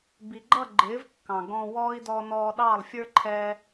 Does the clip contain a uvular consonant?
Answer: no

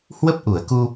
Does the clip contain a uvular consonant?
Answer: no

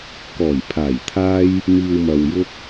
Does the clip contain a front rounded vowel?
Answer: no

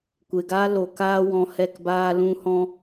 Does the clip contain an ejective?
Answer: no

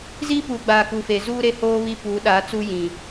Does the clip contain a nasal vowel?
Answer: yes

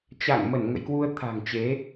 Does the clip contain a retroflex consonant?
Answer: no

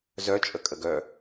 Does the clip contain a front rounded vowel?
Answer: yes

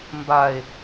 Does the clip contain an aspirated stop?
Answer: no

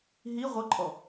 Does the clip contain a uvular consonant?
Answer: yes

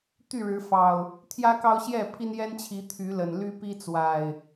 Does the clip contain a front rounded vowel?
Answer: yes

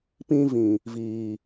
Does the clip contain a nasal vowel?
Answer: yes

